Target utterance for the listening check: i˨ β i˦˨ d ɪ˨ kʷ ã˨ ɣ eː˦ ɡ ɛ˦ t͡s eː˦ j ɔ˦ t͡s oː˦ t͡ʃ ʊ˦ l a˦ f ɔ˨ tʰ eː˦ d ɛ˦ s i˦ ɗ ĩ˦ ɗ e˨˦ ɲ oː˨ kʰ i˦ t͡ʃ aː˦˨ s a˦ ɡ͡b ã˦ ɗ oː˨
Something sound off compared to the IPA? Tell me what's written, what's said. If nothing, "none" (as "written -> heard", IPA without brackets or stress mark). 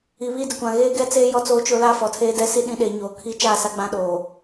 none